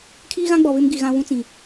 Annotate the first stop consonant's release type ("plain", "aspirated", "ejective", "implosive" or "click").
aspirated